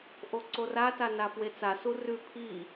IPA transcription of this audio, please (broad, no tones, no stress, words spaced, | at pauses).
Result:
ʔoǀorata nafwet͡sasu rʉ pʰi